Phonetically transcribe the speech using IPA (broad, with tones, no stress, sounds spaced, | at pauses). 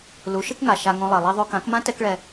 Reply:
l u˨˦ ʃ ɯ˦ k ŋ a˨ ʃ a˧ ŋ õ˧ lˠ e˨ lˠ e˧ ðˤ o˧ k ã˨˦ k m ã˦ t ɛ˦ k ɭ ɛ˧